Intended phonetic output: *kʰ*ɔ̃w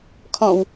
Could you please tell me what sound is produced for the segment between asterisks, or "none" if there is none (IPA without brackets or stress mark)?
kʰ